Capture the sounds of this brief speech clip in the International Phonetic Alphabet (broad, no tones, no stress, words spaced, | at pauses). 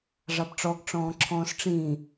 ʐɑbʈ͡ʂɔɡ ʈ͡ʂɔ̃ːǁʰɔ̃ːsʈ͡ʂĩː